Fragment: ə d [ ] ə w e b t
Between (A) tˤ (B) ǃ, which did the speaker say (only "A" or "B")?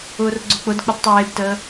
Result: A